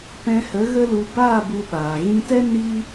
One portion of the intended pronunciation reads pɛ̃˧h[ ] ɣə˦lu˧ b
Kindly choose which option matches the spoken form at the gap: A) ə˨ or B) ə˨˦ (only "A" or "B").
B